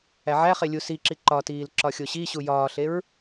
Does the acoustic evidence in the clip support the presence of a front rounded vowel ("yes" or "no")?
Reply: no